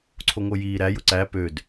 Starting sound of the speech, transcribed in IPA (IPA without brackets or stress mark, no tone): ǀʰ